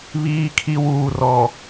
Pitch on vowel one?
low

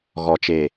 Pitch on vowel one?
low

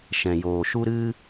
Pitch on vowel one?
low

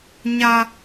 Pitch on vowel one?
high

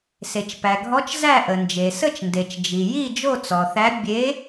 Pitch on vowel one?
low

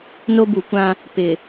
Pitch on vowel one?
high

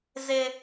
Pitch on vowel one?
high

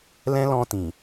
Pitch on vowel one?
high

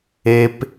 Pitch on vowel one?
high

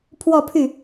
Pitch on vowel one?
falling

